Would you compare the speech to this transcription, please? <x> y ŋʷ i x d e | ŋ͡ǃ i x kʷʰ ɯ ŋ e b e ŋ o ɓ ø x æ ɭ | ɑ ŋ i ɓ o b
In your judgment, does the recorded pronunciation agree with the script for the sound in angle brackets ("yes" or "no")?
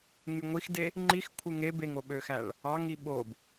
no